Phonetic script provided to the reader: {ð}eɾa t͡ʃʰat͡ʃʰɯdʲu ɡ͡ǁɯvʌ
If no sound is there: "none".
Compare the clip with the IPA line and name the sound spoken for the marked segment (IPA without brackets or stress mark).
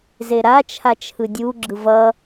z